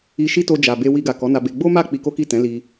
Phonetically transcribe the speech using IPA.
i˧ ʃi˦to˧ d͡ʒa˨be˧ wi˧ɡa˨kɔ˨˦ na˧be˧ ɡ͡bo˦ma˦˨ k͡pi˧ko˦ki˦˨ tɛ̃˨˦li˧

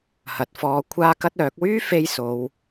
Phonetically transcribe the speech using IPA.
hɐ˨t̚fɔː˧ kʷʰaː˥kɐ˥t̚œː˨˥k̚ wyː˥ fe˥jso˨˧w

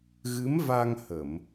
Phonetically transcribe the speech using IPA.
ɣɨ˧˥mva˧ŋ hə˨˩˨m

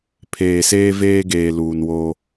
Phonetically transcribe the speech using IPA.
pʰeː˨seː˦veː˦ɡeː˨ luː˨nwo˦

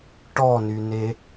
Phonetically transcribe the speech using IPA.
ʈɔnyne

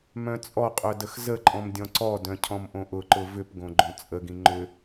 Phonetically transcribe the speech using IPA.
mœ̃t͡sʼɔqʼœ dəxzəǃʼɔ̃m dʲɔ̃ǀɔdœ̃ cʰɔ̃mʔõʔʊǃʊ vʏpɡõ ɡ͡ǃõt͡sʼəɡĩ ŋ͡ǃʏ

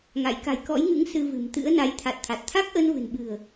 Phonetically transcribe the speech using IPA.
ŋa̰˧˨j ka̤˨˩jkɔ̰˧˥jŋɨ̰˧˥ŋ sɨ˧vɨ̤˨˩m t̪ɨ̰˧˥ə̯na˨˦j t̪ʰa˨˩t̚t̪ʰa˨˩t̚ t̪ʰa˦˥k̚ʔə˧nvɨ̤˨˩nɓɨ̤˨˩ə̯

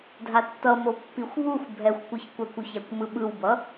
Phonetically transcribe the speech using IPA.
dʱatːʌmo pːixʷβuxʷ bʱɛxʷkʷɯçkʷakʷuç akʷmɯɓɯwbʌ

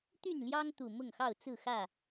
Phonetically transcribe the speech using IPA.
t̪y˥˨nljɑ˦ŋt̪u˨˩ mʊ˥˨ŋxɑ˥˨ʊ̯t͡sɹ̩˥˨xä˥˨

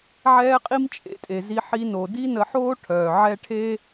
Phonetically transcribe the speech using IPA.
ʕɛː˦qʼi˦m t͡ʃʼḛ˨tʼe˨zi˧ ħi˧no˨ di˦nə˧ħoː˦ ʈʰœː˨ʕɛ˦ ʈʰe˦

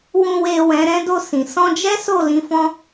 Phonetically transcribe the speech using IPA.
wũ˨we˨ wɛ̃˨˦ɾɛ̃˦do˦˨sĩ˨ sɔ̃˧d͡ʒɛ˦ so˦˨ lĩ˧fɔ̃˦

